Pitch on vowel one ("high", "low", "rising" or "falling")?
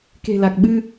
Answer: low